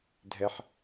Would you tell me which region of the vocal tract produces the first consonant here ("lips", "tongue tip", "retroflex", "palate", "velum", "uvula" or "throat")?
tongue tip